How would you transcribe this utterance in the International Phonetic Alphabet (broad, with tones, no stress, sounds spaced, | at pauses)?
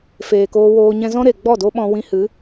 f eː˨ k oː˧ w oː˧ ɲ ɛ̃˧ z ɔ̃˦ ɾ e˨ ɡ͡b ɔ˦˨ d o˦ ɓ ɔ̃˦ w ĩ˧ h ɨ˨˦